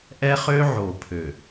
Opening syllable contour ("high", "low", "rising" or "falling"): high